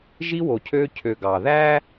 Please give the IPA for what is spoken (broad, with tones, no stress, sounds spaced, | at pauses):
ʒ i˦ w o˨ cʰ øː˦ cʰ ø˨ ɡ ɑ˨ ð æ˦